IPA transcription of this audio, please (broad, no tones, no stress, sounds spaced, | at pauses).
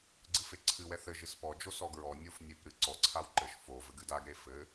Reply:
ɡ͡ǀ ɨ f e ǀʰ ɨ w ɛ θ ɘ ʒ ɨ s p ɔ d͡ʒ o s ɔ ɡ ɹ ɔ nʲ o f nʲ e p ɾ ɨ ǀ ɔ ǀʰ a w ǃ ɘ ʃ f o v ɘ ɡ ɨ d a ɡ ɾ e f ɘ